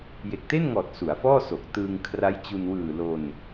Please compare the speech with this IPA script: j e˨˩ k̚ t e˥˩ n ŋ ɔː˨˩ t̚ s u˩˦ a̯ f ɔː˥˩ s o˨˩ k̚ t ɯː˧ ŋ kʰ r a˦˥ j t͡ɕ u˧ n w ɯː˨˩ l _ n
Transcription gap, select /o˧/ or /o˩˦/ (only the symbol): o˧